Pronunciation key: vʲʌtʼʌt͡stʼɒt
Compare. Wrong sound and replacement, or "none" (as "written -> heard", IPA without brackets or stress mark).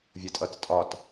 none